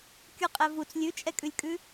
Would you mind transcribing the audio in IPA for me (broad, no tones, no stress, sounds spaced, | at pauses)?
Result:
kʲ u qʼ ɛ v u t͡s lʲ ʉ t͡ʃʼ ɛ kʼ ʉ lʲ kʼ ʉ